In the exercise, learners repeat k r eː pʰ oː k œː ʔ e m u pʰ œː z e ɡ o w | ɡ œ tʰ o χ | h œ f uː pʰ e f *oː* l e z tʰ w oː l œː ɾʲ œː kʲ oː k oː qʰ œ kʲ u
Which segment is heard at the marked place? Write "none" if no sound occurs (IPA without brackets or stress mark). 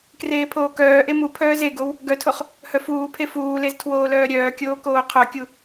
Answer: uː